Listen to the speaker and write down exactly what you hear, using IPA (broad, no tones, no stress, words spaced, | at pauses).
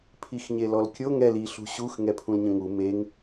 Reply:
pʰixɲelɔlkʲo ŋɛl iɬṳ ɕux ŋɛpʰũlɲə̃ŋu meŋ